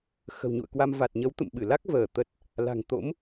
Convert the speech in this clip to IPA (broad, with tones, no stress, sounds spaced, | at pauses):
x ə̤˨˩ w ɲ ṵ˧˨ ə̯ k w a˧ m v a˨˩ t̚ ɲ ə˨˦ w t̪ ə̰˧˨ m ɓ ɨ˧˩ l a˦˥ k̚ v əː˧˩ t̪ ə˨˩ t̚ | l a̤˨˩ ŋ t̪ o̰˧˥ m